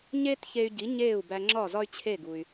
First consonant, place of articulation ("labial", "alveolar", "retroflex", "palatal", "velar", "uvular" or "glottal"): palatal